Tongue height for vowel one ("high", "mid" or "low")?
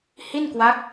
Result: high